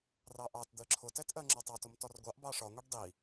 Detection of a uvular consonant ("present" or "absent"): absent